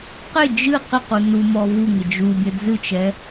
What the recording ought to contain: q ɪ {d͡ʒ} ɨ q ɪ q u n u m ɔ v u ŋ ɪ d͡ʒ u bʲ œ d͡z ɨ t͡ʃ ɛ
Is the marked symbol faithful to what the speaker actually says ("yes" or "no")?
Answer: yes